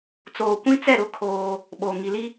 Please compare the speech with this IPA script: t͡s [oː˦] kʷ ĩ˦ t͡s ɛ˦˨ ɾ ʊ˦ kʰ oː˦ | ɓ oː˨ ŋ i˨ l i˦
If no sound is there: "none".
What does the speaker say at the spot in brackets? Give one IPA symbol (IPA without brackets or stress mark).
oː˨